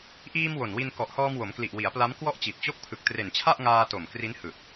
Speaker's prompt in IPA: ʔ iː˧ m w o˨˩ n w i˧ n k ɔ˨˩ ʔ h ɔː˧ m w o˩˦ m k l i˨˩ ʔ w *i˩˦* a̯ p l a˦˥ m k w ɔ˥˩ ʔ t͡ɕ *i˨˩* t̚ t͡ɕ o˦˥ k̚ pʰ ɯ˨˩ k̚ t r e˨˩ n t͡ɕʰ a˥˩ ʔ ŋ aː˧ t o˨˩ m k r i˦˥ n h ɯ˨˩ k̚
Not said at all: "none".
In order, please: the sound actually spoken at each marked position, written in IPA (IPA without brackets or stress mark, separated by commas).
i˩˦, i˨˩